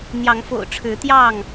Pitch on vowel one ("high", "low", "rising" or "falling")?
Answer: rising